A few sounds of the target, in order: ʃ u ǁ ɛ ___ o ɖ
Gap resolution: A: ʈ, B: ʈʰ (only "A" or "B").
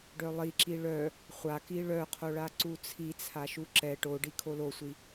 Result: A